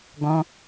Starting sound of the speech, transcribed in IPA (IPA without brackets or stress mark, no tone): ɡ